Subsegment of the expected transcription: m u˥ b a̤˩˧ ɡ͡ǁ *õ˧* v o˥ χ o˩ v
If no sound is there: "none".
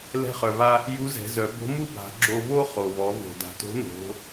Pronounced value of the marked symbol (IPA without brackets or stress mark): o˧